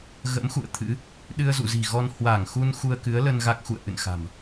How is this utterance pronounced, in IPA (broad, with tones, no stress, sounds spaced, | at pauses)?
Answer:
ɣ ə̰˧˥ m x ṵ˧˨ ə̯ t̪ʰ ɨ̰˧˥ | ɗ ɨ˧ ə̯ z ṵ˧˨ z i̤˨˩ ɣ ɔ˧ n h w a˧˩ ŋ x u˧ n x u˧ ə̯ k ɨ˨˦ ə̯ l ə˧ n ɣ a˦˥ k̚ x ṵ˧˨ ə̯ ʔ ɨ̰˧˨ n x a̤˨˩ m